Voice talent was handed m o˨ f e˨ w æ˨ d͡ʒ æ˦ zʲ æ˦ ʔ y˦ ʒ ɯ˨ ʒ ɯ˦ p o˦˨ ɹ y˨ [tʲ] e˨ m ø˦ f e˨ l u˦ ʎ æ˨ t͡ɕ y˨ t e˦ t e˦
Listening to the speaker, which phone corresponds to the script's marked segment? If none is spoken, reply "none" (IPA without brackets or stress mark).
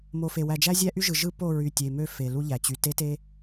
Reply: tʲ